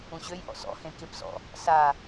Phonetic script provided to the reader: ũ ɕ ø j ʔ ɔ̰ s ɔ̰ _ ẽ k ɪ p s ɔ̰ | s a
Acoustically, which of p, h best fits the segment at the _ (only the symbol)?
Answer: h